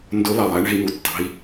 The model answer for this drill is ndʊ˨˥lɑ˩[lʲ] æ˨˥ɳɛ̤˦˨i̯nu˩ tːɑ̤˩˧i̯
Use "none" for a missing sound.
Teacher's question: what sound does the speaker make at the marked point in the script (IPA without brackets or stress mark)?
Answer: lˠ